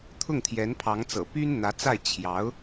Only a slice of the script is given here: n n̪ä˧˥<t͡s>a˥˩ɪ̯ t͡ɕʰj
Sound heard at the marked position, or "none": t͡s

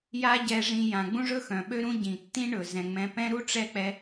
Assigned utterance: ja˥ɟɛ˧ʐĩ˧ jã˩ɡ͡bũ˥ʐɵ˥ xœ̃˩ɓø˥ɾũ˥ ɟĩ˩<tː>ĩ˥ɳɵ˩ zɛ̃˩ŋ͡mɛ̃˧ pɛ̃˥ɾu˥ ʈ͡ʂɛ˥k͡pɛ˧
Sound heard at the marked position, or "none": tː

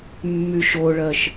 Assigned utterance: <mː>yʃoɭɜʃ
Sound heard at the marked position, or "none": mː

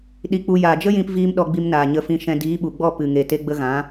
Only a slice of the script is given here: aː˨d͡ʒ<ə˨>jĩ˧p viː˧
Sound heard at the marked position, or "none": ə˦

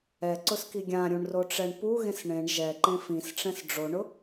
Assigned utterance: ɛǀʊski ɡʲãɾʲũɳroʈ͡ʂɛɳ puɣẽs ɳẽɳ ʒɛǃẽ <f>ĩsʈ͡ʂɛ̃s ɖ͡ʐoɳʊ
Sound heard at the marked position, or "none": f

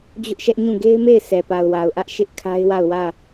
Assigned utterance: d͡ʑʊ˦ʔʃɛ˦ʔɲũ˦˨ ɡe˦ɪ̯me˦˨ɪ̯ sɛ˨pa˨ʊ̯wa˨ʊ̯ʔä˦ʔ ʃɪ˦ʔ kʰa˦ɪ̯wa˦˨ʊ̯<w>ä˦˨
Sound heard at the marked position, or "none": w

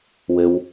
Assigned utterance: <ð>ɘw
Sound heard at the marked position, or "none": w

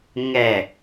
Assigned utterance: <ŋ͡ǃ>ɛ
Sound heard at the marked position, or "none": ŋ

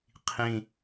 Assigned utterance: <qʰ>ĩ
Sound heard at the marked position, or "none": qʰ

